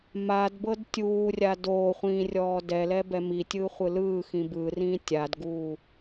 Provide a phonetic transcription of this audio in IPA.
madbɤd tʲuːrʲa doːχʷĩːrʲɔː dɛlɛbɛ mitʲɯχʷɯ lɯːxĩ bɯrĩː tʲadɡuː

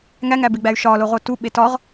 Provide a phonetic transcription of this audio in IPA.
ŋæŋæbeɡ͡bæy̯ ʃɒloʁo tuɓe tɒʁ

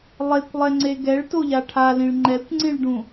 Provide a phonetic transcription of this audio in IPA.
lˠekʷlˠɛŋ͡ǀe ɡɛɭ toʎaʈʰalĩɭ ŋ͡ǃɛkʷŋ͡ǀĩɭɖũ

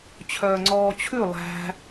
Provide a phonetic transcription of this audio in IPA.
t͡ɕʰœːŋ͡ǀɔːt͡ɕʰʉ lˠæ̤

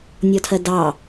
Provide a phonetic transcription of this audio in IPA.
nʲɔtʰɜdɑ

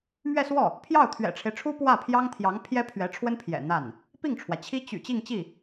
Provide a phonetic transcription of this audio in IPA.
mɥɛ˥˧swɔ˥˩ | pʰjɑ˥˩ʊ̯t̪ʰɥɛ̰˨˩ʈ͡ʂʰe˦ɪ̯ʈ͡ʂʰu˥ pwä˥˩pʰjɑ˥ŋt̪ʰjɑ˧˥ŋ pʰjɛ˥pʰɥɛ˧˥ʈ͡ʂʰwə˥npʰjɛ̰˨˩ n̪a˥˩n | pi˥˩ŋʈ͡ʂʰwä˩t͡ɕʰi˥ t͡ɕy̰˨˩ t͡ɕi˥˧ŋt͡ɕi˥˩

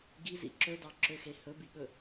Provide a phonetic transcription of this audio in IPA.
ɡizḭ ǁɵdɑǁøxe hɵbiɠɵ

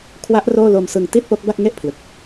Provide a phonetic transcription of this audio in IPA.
kʰwa˦˥ʔ roː˥˩ lo˧msɯ˧ŋ ti˥˩t̚po˦˥k̚ba˥˩k̚ ŋe˥˩ʔpʰlɯ˨˩k̚

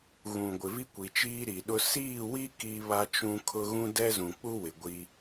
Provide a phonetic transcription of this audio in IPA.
ɣũ˨ ɡʷɪ˨vi˦kʷi˨t͡ʃiː˦ ɾi˨ɗʊ˦ siː˦˨wi˦ ki˦βa˦t͡ʃũ˦kʰʊ˦ ɣũ˦dɛ˦zũ˨ k͡pu˦wɪ˨ ɡʷi˦

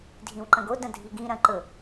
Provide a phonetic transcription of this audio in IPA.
dʱĩwǃɐ̃ɡo dɐ̃dʱiɡĩ ɾɐ̃ǃɵ

